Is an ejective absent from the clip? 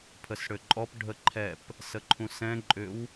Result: no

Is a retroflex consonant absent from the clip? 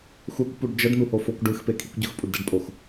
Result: no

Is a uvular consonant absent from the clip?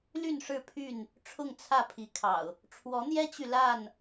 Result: yes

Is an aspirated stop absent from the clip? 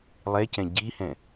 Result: yes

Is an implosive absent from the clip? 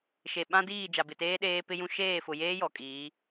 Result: no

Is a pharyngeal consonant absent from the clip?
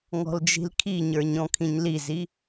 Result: yes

